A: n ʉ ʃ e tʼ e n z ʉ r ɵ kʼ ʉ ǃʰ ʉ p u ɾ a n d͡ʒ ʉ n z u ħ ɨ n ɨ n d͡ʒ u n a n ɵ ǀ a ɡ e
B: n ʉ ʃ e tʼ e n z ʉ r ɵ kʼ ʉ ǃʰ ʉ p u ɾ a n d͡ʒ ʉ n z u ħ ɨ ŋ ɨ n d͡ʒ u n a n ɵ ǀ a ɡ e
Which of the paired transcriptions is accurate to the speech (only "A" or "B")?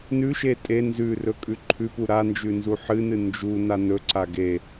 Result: A